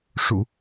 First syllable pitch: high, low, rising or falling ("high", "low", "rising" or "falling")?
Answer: low